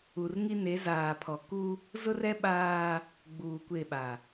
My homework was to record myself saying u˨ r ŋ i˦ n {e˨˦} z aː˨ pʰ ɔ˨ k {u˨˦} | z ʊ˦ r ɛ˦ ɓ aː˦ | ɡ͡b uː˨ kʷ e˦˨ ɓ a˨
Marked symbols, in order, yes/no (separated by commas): yes, no